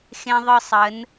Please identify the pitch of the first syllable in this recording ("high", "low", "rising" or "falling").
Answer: high